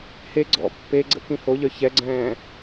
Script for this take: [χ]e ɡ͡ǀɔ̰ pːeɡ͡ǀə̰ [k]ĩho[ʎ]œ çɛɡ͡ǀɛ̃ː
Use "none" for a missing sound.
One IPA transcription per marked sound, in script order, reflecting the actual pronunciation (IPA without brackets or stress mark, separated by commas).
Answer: h, k, ʎ